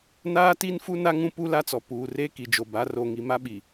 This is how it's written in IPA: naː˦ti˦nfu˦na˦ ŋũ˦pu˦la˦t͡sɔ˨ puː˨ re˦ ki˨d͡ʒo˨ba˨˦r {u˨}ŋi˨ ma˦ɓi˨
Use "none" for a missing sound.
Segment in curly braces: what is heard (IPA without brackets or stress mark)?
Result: o˨